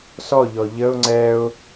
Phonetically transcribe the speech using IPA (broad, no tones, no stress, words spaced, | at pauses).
sɔʎɔ ʎəʊ̯ ŋ͡ǀɛʊ̯